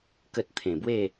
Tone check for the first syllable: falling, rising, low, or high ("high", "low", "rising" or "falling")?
low